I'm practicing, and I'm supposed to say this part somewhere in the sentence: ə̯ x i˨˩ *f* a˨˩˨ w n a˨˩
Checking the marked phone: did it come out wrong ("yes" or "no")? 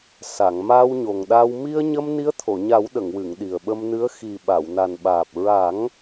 yes